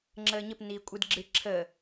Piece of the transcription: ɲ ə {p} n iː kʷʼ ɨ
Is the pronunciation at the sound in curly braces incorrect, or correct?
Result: correct